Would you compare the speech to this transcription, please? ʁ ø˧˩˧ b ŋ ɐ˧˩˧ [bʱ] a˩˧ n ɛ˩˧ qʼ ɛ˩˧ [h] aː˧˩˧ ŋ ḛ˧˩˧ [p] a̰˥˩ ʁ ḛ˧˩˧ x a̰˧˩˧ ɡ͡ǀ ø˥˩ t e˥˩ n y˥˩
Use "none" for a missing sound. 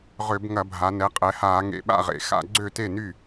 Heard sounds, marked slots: bʱ, h, ɓ

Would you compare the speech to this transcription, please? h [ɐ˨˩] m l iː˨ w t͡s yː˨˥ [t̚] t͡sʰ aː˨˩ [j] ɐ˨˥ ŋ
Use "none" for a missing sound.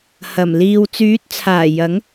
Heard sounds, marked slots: ɐ˨˩, t̚, j

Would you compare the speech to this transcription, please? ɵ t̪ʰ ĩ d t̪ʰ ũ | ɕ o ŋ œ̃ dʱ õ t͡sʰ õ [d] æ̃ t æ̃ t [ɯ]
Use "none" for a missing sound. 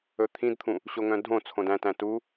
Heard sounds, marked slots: d, u

